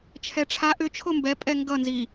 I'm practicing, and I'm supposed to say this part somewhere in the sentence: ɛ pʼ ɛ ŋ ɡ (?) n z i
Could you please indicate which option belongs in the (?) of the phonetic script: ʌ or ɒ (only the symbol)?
ʌ